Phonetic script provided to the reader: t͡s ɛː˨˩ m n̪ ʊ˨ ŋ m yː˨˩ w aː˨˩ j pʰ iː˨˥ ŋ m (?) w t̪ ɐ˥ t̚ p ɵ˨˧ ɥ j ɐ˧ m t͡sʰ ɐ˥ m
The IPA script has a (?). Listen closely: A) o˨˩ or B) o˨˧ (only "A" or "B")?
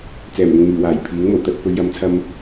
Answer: A